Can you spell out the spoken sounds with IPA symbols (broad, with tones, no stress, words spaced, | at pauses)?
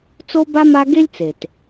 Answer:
t͡so˥ba˥ ma˥ ɡe˥lʲt͡se˩t